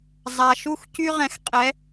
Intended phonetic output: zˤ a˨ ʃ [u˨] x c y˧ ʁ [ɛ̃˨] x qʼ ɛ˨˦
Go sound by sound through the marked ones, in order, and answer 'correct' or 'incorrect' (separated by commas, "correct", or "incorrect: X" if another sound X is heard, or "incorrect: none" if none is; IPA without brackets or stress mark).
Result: incorrect: u˦˨, correct